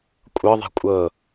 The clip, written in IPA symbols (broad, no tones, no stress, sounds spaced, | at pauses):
kʷʼ ɤ ðˤ ɛ̤ kʷʼ ɤ